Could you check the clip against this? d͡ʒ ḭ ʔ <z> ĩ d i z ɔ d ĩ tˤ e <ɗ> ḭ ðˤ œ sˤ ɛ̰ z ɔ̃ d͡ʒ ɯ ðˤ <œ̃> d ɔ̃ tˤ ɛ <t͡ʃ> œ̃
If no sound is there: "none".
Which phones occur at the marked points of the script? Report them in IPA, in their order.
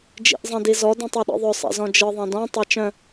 zˤ, ɗ, ɛ̃, t͡ʃ

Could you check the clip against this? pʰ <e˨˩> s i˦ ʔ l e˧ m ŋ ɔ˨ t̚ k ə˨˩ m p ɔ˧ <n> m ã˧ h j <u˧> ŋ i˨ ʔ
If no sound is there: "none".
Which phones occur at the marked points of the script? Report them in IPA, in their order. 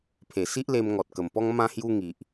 e˨˩, ŋ, u˧

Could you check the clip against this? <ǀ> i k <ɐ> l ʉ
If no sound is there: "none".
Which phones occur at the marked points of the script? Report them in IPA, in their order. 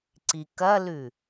ǀ, ɐ

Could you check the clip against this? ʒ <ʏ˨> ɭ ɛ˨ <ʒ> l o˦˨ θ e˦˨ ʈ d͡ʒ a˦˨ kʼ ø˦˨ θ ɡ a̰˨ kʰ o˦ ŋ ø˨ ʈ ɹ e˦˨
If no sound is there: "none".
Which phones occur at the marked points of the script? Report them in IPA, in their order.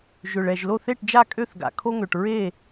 ʏ˨, ʒ

